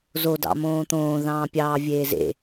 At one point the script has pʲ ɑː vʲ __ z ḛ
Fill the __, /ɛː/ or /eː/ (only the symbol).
eː